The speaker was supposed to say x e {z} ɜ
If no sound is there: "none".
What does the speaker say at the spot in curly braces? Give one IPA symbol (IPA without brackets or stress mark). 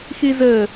z